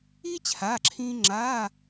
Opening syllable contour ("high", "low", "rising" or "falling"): high